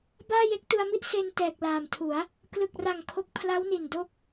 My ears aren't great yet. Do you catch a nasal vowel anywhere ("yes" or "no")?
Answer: no